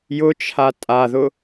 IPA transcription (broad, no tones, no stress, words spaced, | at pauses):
jʊ t͡ʃʰatʼaðʊ